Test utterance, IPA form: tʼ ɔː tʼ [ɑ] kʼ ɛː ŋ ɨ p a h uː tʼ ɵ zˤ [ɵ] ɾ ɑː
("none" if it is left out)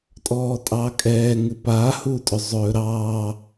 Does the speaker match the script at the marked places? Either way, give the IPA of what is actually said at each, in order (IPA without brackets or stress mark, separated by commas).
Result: ɑ, ɵː